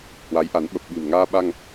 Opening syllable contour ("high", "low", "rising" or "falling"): rising